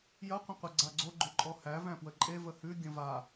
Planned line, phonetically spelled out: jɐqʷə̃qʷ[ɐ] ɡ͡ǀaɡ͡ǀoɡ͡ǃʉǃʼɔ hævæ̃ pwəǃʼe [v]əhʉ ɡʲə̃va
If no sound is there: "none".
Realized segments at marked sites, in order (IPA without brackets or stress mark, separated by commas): ɐ, v